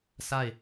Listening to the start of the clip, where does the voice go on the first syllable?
falling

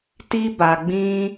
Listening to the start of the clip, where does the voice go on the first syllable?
high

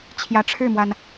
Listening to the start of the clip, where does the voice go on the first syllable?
rising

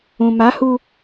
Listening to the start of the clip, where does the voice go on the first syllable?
low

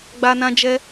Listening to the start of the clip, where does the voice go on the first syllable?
high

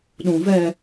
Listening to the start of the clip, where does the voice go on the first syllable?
low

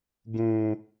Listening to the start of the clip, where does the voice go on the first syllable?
high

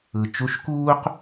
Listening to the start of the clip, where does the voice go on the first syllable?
low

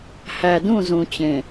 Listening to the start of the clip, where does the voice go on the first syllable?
low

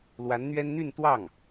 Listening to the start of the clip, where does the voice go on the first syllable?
rising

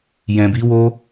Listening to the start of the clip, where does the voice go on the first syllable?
low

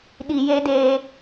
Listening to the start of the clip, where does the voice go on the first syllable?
low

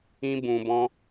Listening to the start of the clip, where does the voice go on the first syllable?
high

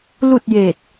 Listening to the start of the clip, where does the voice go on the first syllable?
falling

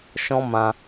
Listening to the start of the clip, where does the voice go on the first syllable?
high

